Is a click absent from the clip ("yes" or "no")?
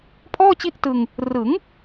yes